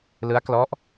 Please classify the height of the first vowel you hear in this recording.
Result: high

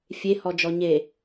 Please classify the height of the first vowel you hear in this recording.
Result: mid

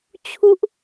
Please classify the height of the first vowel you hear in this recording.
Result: high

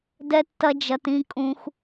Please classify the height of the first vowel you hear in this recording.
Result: mid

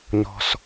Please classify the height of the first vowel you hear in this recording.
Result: mid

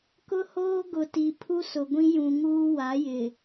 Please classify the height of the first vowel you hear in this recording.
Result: high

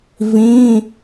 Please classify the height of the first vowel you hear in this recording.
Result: high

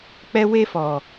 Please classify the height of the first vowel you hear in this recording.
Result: mid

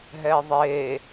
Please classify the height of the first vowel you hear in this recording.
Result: mid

